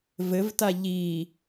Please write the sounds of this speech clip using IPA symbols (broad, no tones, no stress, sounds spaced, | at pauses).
v ɘ v t a ʎ i